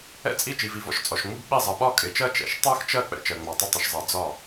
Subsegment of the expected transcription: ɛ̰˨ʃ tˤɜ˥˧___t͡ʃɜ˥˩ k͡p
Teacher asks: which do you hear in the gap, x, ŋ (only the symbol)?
x